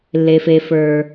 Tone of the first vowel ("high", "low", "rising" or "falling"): low